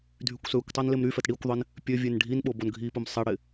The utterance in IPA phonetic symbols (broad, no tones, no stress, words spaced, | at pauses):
dʱykʷsøkʷtˤan lɪmɾyfɛt ɽikʷðˤɪn | pʲø vʲenɖʱinɓo bonɡʱipʊm sˤɛɽɪ